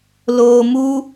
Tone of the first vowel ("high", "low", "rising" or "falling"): low